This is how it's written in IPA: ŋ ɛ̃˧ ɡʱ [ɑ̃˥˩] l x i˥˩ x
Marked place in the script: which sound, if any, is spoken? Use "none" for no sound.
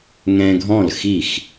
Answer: ɔ̃˥˩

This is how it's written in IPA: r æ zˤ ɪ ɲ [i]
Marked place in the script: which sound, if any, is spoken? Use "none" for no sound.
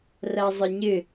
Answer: ɪ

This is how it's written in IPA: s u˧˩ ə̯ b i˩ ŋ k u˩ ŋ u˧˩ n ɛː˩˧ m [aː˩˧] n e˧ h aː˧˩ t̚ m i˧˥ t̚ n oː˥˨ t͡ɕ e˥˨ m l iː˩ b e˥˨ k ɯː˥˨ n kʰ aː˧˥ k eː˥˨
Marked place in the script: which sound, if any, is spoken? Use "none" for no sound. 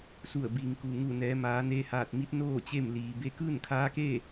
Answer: aː˩˧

